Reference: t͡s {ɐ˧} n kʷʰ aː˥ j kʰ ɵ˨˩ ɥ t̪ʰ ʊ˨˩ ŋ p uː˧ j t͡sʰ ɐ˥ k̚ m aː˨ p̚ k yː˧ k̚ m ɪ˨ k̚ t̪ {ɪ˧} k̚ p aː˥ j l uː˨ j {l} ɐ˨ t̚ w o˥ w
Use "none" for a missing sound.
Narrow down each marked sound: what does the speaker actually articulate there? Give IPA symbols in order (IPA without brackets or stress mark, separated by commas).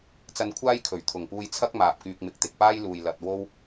ɐ˧, ɪ˨, l